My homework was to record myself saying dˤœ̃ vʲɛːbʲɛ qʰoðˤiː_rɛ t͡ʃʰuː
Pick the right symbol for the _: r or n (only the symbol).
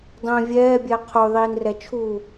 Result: n